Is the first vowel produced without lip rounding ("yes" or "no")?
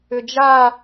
no